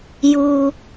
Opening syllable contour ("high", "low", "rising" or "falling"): low